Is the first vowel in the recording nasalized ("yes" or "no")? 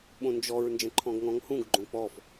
yes